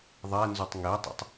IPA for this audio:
ðˤ ɛ n z u tˤ ŋ e tˤ ə̰ tˤ

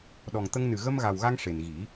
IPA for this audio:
ɗ ɔ˨˩ ŋ t̪ ə˧ ŋ n ɨ˨˩ ɣ ə˧ m ɣ a˨˩ w ɣ a˧ ŋ ʂ e˨˩ n ɣ i˨˩˦

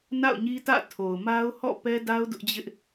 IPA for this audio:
n a̰˦˨ ʊ̯ ɲ i˦ t ä̰˦˨ tʰ o˨ ʊ̯ m a˦ ʊ̯ h ɔ̰˦˨ p ɛ˦ d a˦ ʊ̯ d ʊ˦ ʔ d͡ʑ ɪ˦ ʔ

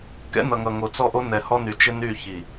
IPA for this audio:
k ɛ̰˦ n ʌ˨ ŋ ʌ˨ ŋ o˨ t͡s ɔ˦˨ ʔ o˦ n ɛ˨ h ɔ˦ n y˨ t͡ʃ ɪ˦ n y˦˨ ç i˨

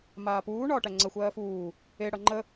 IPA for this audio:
m aː p uː ɳ ɒː ʈ æ ŋ͡ǀ ə xʷ ɜː f uː | e ɽ ʌ ŋ͡ǃ ə

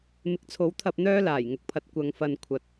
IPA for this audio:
m ɪ˨˥ k̚ t͡sʰ o˨˥ w t̪ʰ ɐ˧ p̚ n̪ œː˥ l aː˨˩ j ŋ ʊ˧ k̚ pʰ ɐ˧ t̚ kʷ ɐ˧ ŋ f ɐ˧ n kʷʰ ɐ˨ t̚

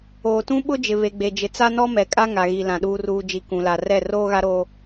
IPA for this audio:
oː˨ t ũ˦ ɓ ʊ˦ d͡ʒ ɪ˨ β e˨ ɡ͡b e˨ d͡ʒ ɪ˨ t͡s a˦ n ɔ˦ m ɛ˨ kʼ a˦ ŋ a˨ ɣ i˨ l ã˨ ɗ uː˨ r uː˨ d͡ʒ i˨ k ũ˨ l a˨ r ɛ˦˨ r oː˦ ɣ a˦ ɾ oː˦

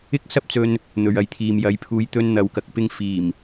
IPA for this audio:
ɪ˥ k̚ s ɐ˥ p̚ t͡s ɵ˧ n | n̪ ɵ˨ ɥ ɐ˧ j t̪ʰ iː˨ m j ɐ˨˥ j pʰ uː˨˧ j t̪ ɵ˧ n n̪ ɐ˨˧ w k ɐ˨ k̚ p ɪ˧ ŋ f iː˨˩ m

